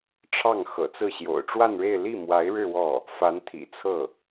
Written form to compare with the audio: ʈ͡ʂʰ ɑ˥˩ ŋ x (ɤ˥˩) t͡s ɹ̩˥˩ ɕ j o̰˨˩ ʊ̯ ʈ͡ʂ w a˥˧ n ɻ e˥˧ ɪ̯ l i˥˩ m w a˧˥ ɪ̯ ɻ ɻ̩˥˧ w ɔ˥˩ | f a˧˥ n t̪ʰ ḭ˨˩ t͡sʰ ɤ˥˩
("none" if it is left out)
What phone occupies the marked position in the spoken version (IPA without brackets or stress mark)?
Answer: ɤ̰˨˩